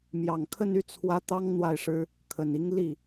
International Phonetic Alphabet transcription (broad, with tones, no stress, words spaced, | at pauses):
mjɑ˨˩ŋkʰə˥˧n y˥˩t͡sʰwä˧˥ t̪ɑ˥ŋ n̪wa˥˩ɪ̯ʂɻ̩˥ | kʰə˨˩ni˧˥ŋ li˥˩